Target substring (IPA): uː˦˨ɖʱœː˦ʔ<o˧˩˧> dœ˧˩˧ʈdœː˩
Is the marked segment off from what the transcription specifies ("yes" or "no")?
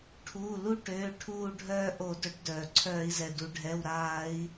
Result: no